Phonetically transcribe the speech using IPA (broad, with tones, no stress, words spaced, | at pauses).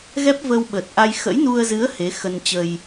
ɣɛ˦˥p̚və˧w ɓə˨˩t̚ʔa˧j xə̰˧˥jnu˧ə̯zɨ˨˦ə̯ he˨˦ xə˧nt͡ɕə˧j